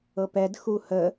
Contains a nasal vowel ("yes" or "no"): no